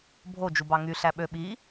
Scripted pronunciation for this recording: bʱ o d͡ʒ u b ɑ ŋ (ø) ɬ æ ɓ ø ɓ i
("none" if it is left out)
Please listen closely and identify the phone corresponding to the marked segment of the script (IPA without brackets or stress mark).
y